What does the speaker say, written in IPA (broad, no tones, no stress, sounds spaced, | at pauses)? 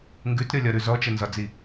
ŋ ɡ ʉ t ɾʲ ɔ lʲ ɒ ɾ ʉ z ɔ t͡ʃ ə n z ɒ d͡z i